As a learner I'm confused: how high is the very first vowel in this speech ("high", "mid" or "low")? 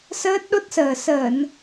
mid